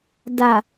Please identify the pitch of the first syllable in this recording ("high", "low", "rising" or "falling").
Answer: low